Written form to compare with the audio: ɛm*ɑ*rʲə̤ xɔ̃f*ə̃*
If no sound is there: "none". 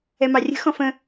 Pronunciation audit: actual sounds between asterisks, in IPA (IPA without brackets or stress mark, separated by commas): ɑ, ə̃